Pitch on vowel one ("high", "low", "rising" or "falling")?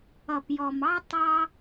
low